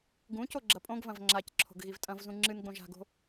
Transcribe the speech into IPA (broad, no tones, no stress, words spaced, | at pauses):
ɡũco ɡ͡ǁɐpʼõɡvɐ̃v ŋ͡ǁacǁʰo̤ɡ ɣivtʼɐ̃vzũ ŋ͡ǁɨnɡ͡bõʒ a̤ɡo̤